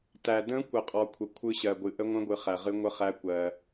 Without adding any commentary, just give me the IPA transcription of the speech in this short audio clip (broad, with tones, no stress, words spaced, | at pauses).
tæ˨də̃˧˥kʷə˨qʼɔ˨ kʷʰə˨kʷʰɯ˧˥ɕɜ˨ɡʷɨ˨ ʔə˧˥ŋʷə̃˧˥ɡʷɨ˨ χæ˨ʁɨ˧˥ ŋʷə˧˥ χæ˧˥ kʷɜ˨